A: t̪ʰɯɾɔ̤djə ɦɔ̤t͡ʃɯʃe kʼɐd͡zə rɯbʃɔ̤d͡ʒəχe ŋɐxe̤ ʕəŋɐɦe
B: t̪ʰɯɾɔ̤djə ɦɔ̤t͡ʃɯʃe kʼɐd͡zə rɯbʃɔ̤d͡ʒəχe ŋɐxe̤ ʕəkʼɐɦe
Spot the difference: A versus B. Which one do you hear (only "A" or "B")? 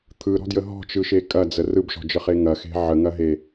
A